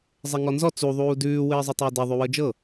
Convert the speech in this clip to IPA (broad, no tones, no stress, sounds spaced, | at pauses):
zˤ ɛ ŋ ɔ n z ɔ t͡s u ðˤ uː d ʉː w ɘː zˤ ʉ tˤ ɘː d ɛ ðˤ ʉ w ɤ d͡ʒ ɤ